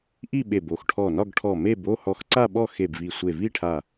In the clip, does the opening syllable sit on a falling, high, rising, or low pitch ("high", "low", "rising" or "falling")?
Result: falling